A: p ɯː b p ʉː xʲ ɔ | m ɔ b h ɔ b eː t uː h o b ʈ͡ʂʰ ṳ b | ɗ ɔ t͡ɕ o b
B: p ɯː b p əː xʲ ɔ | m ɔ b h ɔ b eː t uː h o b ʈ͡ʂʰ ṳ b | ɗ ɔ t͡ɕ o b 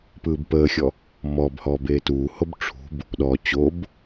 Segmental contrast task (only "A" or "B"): B